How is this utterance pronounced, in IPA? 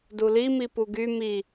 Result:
duli mipuɡy mi

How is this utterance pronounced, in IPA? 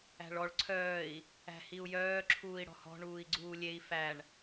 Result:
æ̤ɭɔɭ ǀʰœːi̯ | æ̤hiu̯jœː ǁʰuːi̯ɽɔ̤hɔ̤ ɳuːi̯ɡ͡ǀuːlʲei̯ fæɳ

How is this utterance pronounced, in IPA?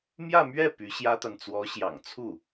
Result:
mjä˥˧mɥɛ˥˩ py˧˥ ɕjä˥t̪a˨n t͡swɔ˧˥ɕjɑ̰˨˩ŋt͡sʰu˥˩

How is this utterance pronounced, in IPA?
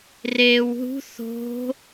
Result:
reːwɦṳ θo̤

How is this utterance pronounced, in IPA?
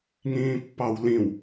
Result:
ŋĩːpːɑwlĩw

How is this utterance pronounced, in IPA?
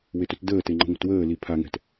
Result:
wetɵtdəːte ŋ͡ǃə̤ŋʷə̤twəːli pʰaŋɛ̤t

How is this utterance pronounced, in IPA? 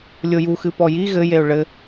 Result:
lʲoju xɨpɔji ɣɘ jeʊ̯ɭɘ

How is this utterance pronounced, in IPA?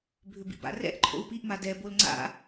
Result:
bʱʏbḭba̰rɛ̰ʔ ǃʰo̰u̯piʔma dɛ bolŋ͡ǀa̰

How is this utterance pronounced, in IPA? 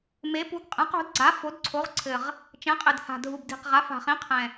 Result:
me˩˥pu˩˥ɡ qʼɛ̃˩˥qo̤˩˥dɡ͡ǀa˩˥ fo˩˥dǀʰo˩˥ʁǀʰɘ˨˩ʁ | t͡ʃɛ̃˩˥qʼɘ˨˩d ha̤˨˩dʱu˨˩b di̤˨˩qʁa˩˥ fa̤˨˩χĩ˩˥qʰɛ̃˨˩

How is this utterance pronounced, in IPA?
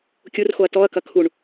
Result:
kʲurxoɐ̯ tɔɐ̯kɐ kʰuɳ

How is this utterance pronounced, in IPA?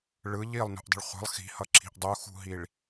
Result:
ɭɯ ʎilˠnṳʔdˤə̤ɭ χʷə̤lˠ xi̤hʌǁʰi̤ʔ dˤuxṳɦiɭ

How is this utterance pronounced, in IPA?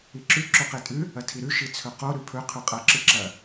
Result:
iǁʉ ǁɵqetʼʉ | ɐtʰiɾʉ ʃit͡sʰɵqo ɾʉpʰɵ qʰʉqʼɐ ǁɨǁɐ

